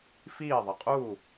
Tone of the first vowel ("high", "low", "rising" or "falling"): falling